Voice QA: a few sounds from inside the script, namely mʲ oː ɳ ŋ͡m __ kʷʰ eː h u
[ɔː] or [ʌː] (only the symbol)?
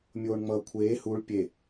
ʌː